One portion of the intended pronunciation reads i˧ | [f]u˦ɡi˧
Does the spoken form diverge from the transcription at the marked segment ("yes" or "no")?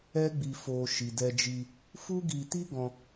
no